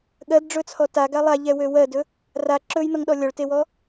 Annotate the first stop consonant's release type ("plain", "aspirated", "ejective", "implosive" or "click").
implosive